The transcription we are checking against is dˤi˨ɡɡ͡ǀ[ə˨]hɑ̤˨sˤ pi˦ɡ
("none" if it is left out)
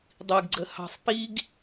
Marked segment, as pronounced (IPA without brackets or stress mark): ə˨